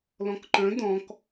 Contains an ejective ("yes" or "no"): no